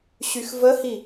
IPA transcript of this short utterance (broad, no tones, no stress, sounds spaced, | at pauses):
ɕ y x v ə h i